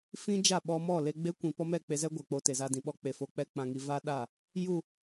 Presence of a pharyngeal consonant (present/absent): absent